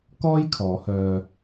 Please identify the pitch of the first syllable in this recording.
high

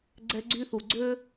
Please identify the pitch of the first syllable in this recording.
high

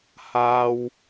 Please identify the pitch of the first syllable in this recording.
low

